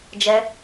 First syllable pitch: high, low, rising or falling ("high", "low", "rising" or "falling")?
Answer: high